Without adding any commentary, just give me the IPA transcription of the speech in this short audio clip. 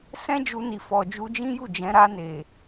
s ɛ̃˦ d͡ʒ u˧ n i˨ f ɔ˨ d͡ʒ u˧ d͡ʒ ĩ˦ j u˦˨ d͡ʒ ɛ̃˨˦ ɾ a˧ n e˨

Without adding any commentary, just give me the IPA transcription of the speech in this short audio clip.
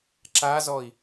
ǁ a z ɔ i̯

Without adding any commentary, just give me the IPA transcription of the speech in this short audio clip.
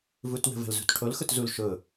v u t w ə̤ v ə̤ l z ṳ t ʈʰ o l x ʊ t z u l ʃ ʊ

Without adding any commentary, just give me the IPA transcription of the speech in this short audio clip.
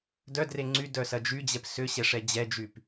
d œ d r e ŋ͡ǀ y d œ s ɐ d͡ʒ y d͡ʑ ɛ p s ʏ ɕ ɛ ʂ ɛ d͡ʑ ɛ d͡ʒ y p

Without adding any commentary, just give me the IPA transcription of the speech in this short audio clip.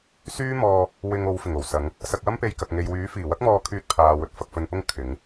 s yː˥ m ɔː˧ | w ɪ˧ ŋ o˨˧ w f ɪ˨˩ ŋ o˨˩ w s ɐ˨˧ ŋ | s ɐ˧ k̚ w ɐ˥ m p e˧ j k ɐ˨ k̚ ŋ e˨ j w yː˨˥ f iː˨˩ w ɐ˥ k̚ m ɔː˧ kʰ yː˧ t̚ pʰ aː˨ w ɵ˧ t̚ f ɐ˧ k̚ f ɵ˧ n p ʊ˥ ŋ kʰ ɪ˨˧ ŋ

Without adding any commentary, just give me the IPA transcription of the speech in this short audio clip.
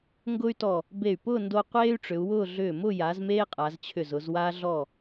ŋ ɡ ʊː˥ y̯ t ɔ˧˩ | b e˧˩ y̯ p ʊː˥˧ n d o˧ qʷ eː˥ y̯ ʈ͡ʂ ʏ˩˧ u̯ w ʊː˥˧ ɮ ʏː˧˩ m ʊ˥˧ j a˩˧ z m eː˥ qʼ a˩˧ z t͡ɕʰ ʏ˧˩ z ʊ˩˧ z w a˧ ɮ ɔ˧˩

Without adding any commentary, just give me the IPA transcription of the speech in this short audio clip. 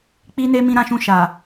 k͡p i˦ n e˦ m ĩ˧ ɾ ã˧ ʃ ũ˧ ʃ a˨

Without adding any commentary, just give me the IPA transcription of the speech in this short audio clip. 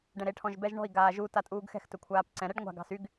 ɖ ɛ̃ ɾ e ʈʰ ɔ̃ ʒ b ɛ ʒ ɳ ɔ̤ i̯ ɡ aː ʒ u t a tʼ uː ɡ x ɛ̤ x t ɵ kʷʰ aː p ǀ ɛ̃ ɾ ɛ ɖ ŋʷ a̤ ɡ ɑ̤ s y ɡ

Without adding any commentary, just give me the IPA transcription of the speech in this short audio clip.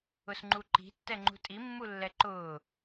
ʊ s ŋ͡ǃ u ǃ i̤ tː ɛ ŋ͡ǃ ṳ tʼ i mː u lː ɛ ǃ ʊː

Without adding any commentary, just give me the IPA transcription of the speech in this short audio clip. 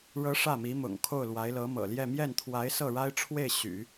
ɻ ɤ˧˥ ʂ ä˥˩ m i˧˥ m ʊ̰˨˩ ŋ kʰ o˥˩ ʊ̯ l w a˧˥ ɪ̯ l ɤ˧˥ m ɤ̰˨˩ l j ɛ˥˧ m j ɛ˥˩ n t̪ʰ w a˧˥ ɪ̯ s ɤ˥˩ ɻ a˥ ɪ̯ ʈ͡ʂʰ w e˥˩ ɪ̯ ɕ y̰˨˩˦

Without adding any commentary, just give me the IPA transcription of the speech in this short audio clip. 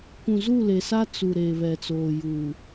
kʷ ũ˨ z u˦˨ l e˨ s a˦ t͡s u˨ ɾ eː˨ β ɛ˨ t͡s oː˨ j u˨

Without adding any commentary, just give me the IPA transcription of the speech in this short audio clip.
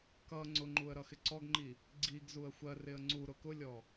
k ʌ ŋ͡ǀ ʊ ŋ͡ǃ u ə̯ ɾ ʌ x ɪ ǀ ɔ ɡ ŋ͡ǃ i | ɡ͡ǀ i ɡ z u ə̯ xʷ ɜ r ɪ ə̯ ŋ͡ǀ u ɾ ʊ k ʊ lʲ ɔ

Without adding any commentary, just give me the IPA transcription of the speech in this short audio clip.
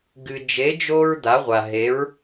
ɡ ɨ˧ d͡ʒ e˧˥ d͡ʒ o˥ ɹ d̪ a˧˥ ʁʷ a˧ ɦ e˧˥ ɹ

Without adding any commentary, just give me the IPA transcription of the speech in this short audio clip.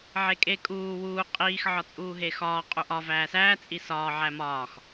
ʕ e kʼ e kʼ uː w uː qʼ iː x ʕ ɒ t͡sʼ uː ɦ eː x ɒː qʼ u ʔ ɒ v æː s æː t͡sʼ i s ɒː ʕ æ m ɒː x

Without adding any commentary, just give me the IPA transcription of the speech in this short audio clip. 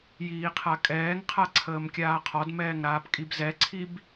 j iː qʰ a kʼ ɛː ŋ qʰ a ǀʰ əː m kʲ aː qʰ ɔ d m ɛː ŋ ɾ aː p kʼ i b z ɛ ǀʰ i b

